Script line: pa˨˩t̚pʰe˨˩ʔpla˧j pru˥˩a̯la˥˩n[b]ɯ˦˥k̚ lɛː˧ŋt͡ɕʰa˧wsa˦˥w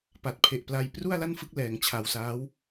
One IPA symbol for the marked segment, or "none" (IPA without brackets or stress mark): f